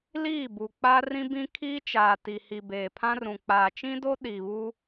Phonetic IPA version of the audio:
l iː˦˨ b u˨ k͡p aː˦ r ĩ˦ b ĩ˦ kʰ iː˦ t͡ʃ aː˨ t i˨ h i˨ b eː˨ pʰ ã˦ r ũ˨ k͡p aː˨ t͡ʃ ĩ˦ d o˦ ɗ i˨ β u˦

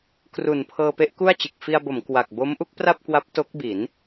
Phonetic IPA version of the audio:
k r u˨˩ n pʰ ɤː˧ p e˦˥ ʔ k u˥˩ a̯ t͡ɕ ɯ˨˩ k̚ f i˧ a̯ b o˩˦ m k w a˨˩ k̚ b o˦˥ m ʔ u˦˥ k̚ p r a˥˩ p̚ k w a˦˥ p̚ t o˦˥ k̚ b i˩˦ n

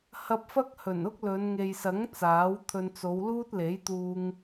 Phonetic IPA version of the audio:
h ɐ˧ p̚ f ɐ˥ k̚ h ɵ˨˩ n ʊ˥ k̚ l ɵ˨˧ n ŋ e˨ j s ɐ˨˥ ŋ t͡s aː˨˥ w t̪ʰ ɵ˧ n t͡s o˨˧ w l uː˥ t̚ l e˨˥ j t̪ uː˧ ŋ

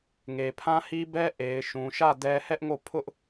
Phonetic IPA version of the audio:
ŋ e˨ pʰ ã˦ h i˦ b ɛ˦ ʔ e˨ ɪ̯ ʃ ũ˨ ʃ ä˦˨ d ɛ˦ h ɛ˦ ʔ ŋ o˦˨ pʰ ʊ˦ ʔ

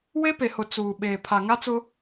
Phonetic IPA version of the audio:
w e˦ p e˨ h ʊ˨ t͡s uː˨ ɓ eː˨ pʰ a˨ ŋ a˦ t͡s ʊ˦

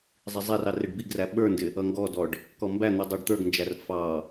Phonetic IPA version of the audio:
zˤ i zˤ ɛ r ɑ r ɪ ɖ b i ɡ r æ ɓ ə˞ n d ɪ | ʌ ŋ ɡ ɔ d ɔ ɖ | k ɔ m b æ n̪ u dˤ ə˞ ɖ t̪ ə˞ ɡ n d͡ʒ æ r f ɑ

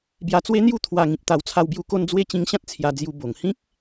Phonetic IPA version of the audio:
b j a˧ t͡s w e˦ n̪ j u˥˧ t̪ʰ w a˧ ŋ ĩ˨ p̚ t̪ a˧ w t͡sʰ a˧ w b j u˧ k o˧ n d͡z w e˧ t͡ɕ ĩ˧ ŋ ɕ ã˦ t̚ t͡sʰ j a˧ d͡z j u˧ b o˨˩ ŋ h ĩ˦ k̚

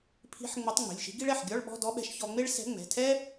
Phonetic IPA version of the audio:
pʰ i̤˧˥ ħ ŋ͡m ə˧˥ tˤ ŋ͡m e̤˩˧˩ lʲ ʃ i̤˧˥ ɡ i˥ ɭ ɛ˩˧˩ ħ ɡʲ ɔ˧˥˧ ɭ ɓ ɔ̤˧˥˧ d ɔ˧˥ ɓ ɛ̤˧ ʃ ç ɔ˧ ŋ͡m e˥ ɭ s ɛ̤˧˥ ŋ͡m ɛ̤˩˧˩ tʰ ɛ˥

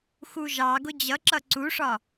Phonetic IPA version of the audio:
x u ʒ ɑ ɡ ʊ d͡ʑ ʌ ǁ ʌ ǀ u ʂ ɒ

